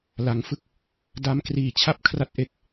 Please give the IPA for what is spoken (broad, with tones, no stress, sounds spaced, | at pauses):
l a˩˦ ŋ f ɯ˥˩ k̚ | d a˦˥ m k r iː˨˩ t͡ɕʰ a˥˩ p̚ kʰ r a˦˥ t̚ ʔ e˨˩ k̚